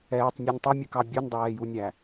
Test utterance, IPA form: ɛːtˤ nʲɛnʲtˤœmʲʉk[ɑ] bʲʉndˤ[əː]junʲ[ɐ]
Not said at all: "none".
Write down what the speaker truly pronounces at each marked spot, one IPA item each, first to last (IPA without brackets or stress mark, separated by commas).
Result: ɑ, ɛː, æ